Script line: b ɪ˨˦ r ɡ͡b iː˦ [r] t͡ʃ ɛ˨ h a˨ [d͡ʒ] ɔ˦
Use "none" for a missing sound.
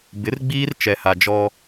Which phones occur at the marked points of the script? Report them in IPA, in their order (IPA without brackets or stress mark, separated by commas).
r, d͡ʒ